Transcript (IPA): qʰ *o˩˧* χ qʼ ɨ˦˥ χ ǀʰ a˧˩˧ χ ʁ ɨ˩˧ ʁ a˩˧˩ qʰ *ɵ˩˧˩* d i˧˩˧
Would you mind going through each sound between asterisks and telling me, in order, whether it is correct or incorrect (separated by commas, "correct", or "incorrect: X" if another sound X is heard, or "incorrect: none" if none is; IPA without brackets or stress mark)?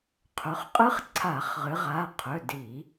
incorrect: ɵ˩˧, correct